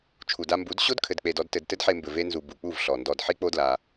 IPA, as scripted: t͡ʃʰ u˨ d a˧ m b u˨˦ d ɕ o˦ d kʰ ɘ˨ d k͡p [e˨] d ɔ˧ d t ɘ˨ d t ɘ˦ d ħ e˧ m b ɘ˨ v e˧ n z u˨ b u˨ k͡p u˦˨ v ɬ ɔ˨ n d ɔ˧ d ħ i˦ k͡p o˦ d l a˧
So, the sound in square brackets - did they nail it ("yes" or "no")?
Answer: yes